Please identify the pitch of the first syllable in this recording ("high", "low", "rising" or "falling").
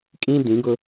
high